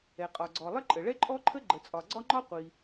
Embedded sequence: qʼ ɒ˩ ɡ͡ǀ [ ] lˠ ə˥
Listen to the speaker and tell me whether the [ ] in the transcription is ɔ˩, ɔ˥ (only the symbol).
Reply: ɔ˩